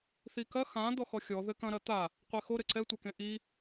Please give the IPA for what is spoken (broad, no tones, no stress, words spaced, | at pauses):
θikɐ xã d̪ɔxɔxʲɔ ðɘkɐ̃ ɾɐt̪a | qʷexo ɾɘǀɛ tʷɛkẽʔi